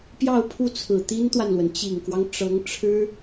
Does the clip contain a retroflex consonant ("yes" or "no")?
yes